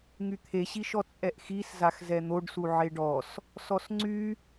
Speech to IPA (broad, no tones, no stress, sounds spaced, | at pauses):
ŋ y t̪ʰ e ɕ i ʃ ɔ t͡sʼ ɛ ʔ x i s z a x z ɛ n̪ o ɖ s u ʕ e ɖ ɔ s | s ɔ s ŋ͡ǀ y